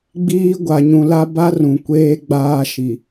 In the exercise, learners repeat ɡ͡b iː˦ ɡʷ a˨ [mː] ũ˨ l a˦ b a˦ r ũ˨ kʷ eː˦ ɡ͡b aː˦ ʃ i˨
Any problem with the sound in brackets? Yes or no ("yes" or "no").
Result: yes